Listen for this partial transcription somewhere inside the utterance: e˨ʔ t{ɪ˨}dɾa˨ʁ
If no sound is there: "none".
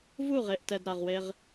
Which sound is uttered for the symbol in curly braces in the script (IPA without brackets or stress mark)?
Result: ɛ˨